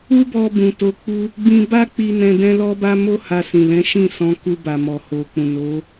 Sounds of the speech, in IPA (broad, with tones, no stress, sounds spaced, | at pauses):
u˦ b ɔ˧ b ũ˨ t o˧ k͡p u˦ | b ĩ˧ b a˦ k͡p i˧ n ɛ̃˧ d ɛ̃˦ l ɔ˦ b a˦ m o˦ h a˧ s ĩ˨ l ɛ̃˨˦ ʃ ĩ˦˨ s ɔ̃˨˦ k u˧ b a˨ m ɔ˨ h o˨ k͡p ũ˨ n o˨˦